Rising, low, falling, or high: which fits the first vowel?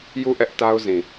falling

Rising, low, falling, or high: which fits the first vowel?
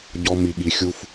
high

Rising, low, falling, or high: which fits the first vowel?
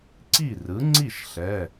falling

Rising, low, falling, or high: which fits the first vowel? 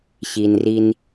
low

